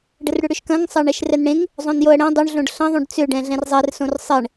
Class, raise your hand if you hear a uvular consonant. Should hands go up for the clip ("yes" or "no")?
no